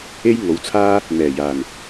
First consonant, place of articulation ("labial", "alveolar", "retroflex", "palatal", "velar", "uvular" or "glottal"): palatal